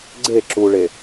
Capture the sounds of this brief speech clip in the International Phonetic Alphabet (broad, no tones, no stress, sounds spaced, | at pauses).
ɡ͡ǀ e ǁ u ɭ e